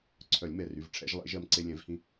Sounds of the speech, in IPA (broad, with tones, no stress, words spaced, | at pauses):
ǀʰœ˨˩˦lʲmɛ˩˧˩ry˩˧˩v ʈ͡ʂʰɛ̰˨˩˦ʒlˠḛ˨˩˦ʒɜ˧m ǀe˧ lʲɛ̃˨˩˦vhĩ˧